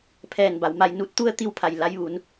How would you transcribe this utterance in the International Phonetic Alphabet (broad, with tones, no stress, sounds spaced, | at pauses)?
pʰ ɛː˧˩ n b a˩˧ w m a˧ j n u˧ t̚ t̪ u˥˨ ə̯ t̪ i˥˨ w pʰ a˧˩ j l a˧ j ʋ uː˩˧ n